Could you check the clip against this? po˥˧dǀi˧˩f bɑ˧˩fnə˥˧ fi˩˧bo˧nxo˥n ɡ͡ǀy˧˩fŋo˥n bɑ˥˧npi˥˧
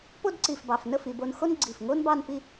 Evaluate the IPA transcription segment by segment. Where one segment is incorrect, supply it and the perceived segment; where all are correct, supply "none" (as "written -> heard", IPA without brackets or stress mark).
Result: y˧˩ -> i˧˩